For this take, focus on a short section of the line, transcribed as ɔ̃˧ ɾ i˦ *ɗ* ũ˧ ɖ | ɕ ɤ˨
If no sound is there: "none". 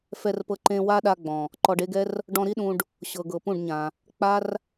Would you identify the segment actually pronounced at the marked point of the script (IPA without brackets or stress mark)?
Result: ɗ